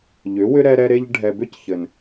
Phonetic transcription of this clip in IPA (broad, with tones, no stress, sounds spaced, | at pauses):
ʎ ʏ˨˦ w ʏ˦ ɾ ɛ˦ ɾ ɛ˦ ɾ e˦ ʎ ɖʱ ɛ˨ b ʏ˦ c ç ɘ˨ n